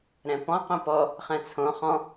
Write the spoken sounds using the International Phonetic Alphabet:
ɾ ɛ̃ p ɔ̃ q õ p ɔ | χ ɛ̃ t͡sʰ õ χ ɔ̃

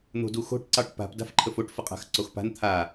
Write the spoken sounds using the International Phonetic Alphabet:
n̪ o̤ d u x o̤ ʈ ǀ ɑ ʈ p a̤ p d a̤ f ǃʰ ə f o ʈ f ə qʼ a̤ x ǀ o x p a̤ n t̪ʰ a

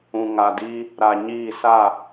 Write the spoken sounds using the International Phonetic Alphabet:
ũ˨ ŋ a˨ d iː˦ | ɾ a˨ ɲ iː˦˨ s a˦˨

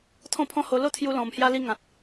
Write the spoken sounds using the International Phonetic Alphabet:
t̪ʰ ɔ̃˥˧ pʰ ɔ̃˦ h o˧ l o˥˧ t̪ʰ j u˧ l ɔ̃˨˩ m h j a˧ l i˧ ŋ ã˨ t̚

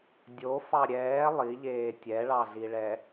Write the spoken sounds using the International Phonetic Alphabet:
dʲ o f ɑ ɾʲ ɛː lˠ i ʎ eː tʲ ɛ ɭ ɑ ɮ i ɭ ɛ

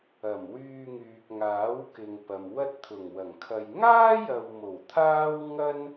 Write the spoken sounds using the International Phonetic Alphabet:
ɐ˨˩ m w yː˧ ŋ yː˨ k̚ ŋ aː˨˥ w k ɪ˨ ŋ p ɐ˨ m w ɐ˥ t̚ t̪ʰ ʊ˨˩ ŋ w ɐ˨˩ ŋ kʰ ɐ˨ j ŋ aː˥ j ɐ˨ w m o˨˩ w t̪ʰ aː˥ w ŋ ɐ˥ n

